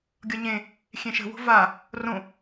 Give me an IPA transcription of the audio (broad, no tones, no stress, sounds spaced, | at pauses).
ɡʲ ʌ ɲ ẽ | xʲ ẽ ʃ ə̤ w o̤ v a | r õ